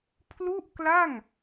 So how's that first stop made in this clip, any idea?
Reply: aspirated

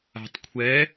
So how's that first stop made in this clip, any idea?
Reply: plain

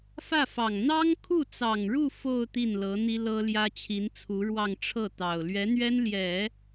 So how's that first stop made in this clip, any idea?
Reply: aspirated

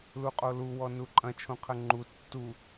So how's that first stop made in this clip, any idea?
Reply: ejective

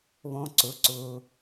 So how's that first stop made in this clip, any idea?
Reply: click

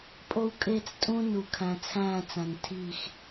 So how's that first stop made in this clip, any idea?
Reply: ejective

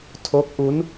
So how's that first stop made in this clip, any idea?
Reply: aspirated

